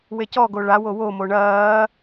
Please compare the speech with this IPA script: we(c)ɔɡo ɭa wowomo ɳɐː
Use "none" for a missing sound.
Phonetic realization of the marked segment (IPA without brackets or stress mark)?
c